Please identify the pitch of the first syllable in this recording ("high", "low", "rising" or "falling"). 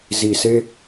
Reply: low